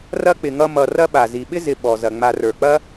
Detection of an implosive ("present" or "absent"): present